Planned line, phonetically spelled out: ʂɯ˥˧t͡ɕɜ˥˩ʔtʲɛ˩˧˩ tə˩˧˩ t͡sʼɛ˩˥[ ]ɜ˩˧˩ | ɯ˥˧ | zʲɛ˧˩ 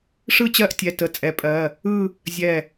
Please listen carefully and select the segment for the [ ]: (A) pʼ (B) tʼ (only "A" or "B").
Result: A